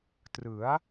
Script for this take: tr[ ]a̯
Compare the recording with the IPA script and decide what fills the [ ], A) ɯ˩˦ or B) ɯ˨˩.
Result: A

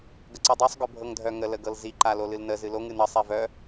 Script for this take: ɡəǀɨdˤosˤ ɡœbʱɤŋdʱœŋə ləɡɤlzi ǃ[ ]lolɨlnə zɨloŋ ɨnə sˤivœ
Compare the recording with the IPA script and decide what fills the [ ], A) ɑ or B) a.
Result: B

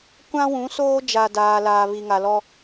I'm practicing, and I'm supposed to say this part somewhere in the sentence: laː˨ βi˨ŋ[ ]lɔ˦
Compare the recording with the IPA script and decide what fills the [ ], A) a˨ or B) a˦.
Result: A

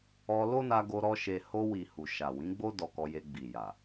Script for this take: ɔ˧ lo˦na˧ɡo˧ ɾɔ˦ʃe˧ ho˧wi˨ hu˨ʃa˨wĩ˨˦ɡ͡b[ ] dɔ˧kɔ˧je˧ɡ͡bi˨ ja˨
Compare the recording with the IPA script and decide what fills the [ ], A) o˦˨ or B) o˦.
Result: B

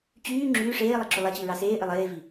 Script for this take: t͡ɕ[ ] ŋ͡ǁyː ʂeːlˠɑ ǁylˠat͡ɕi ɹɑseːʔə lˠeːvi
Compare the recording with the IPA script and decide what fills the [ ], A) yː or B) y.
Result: A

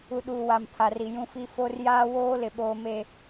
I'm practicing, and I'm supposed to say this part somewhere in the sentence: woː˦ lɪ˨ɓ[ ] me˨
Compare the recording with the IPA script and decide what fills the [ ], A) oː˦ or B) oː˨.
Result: B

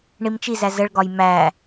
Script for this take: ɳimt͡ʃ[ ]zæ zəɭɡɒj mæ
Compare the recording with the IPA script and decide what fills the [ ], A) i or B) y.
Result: A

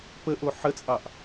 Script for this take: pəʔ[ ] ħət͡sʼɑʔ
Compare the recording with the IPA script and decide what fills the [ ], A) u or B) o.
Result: B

